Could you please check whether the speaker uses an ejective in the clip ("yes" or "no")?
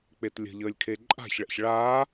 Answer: yes